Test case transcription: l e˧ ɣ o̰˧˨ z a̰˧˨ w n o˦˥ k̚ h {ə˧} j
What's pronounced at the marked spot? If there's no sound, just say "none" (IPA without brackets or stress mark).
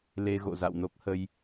ə˧